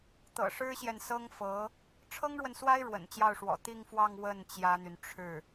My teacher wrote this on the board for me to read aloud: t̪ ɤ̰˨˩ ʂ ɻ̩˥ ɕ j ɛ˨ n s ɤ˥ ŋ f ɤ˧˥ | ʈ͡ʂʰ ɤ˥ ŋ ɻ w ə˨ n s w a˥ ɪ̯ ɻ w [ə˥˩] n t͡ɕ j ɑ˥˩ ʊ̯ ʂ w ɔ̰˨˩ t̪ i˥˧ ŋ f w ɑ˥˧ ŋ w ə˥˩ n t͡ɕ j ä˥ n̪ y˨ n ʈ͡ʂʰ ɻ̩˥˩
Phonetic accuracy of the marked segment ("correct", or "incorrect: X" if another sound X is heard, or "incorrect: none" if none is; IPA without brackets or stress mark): incorrect: ə̰˨˩